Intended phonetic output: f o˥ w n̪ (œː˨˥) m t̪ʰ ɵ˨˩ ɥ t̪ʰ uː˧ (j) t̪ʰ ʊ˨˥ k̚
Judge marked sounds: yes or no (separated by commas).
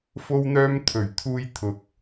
no, yes